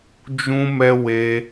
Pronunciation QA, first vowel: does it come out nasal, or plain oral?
nasal